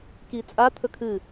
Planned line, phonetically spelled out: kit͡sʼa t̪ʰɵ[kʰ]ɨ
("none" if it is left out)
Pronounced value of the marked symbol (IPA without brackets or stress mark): kʰ